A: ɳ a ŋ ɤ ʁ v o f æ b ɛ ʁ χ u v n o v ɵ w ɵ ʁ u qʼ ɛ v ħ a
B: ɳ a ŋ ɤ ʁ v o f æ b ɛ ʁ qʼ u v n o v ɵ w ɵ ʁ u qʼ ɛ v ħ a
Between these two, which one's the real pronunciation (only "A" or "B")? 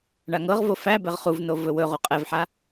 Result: A